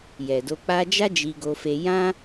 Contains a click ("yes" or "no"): no